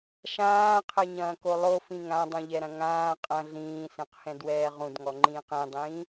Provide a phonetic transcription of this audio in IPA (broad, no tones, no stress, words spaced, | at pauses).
ʃãːqʰɛɲɐ̃ːko lˠofĩ ŋãdˤũʎɛɾɐ̃ ŋãː qʼɐ̃ ɮĩːsẽqhɛ̃dwɛː ʁũdŋɔŋ͡ǃĩːq ĩdˤĩː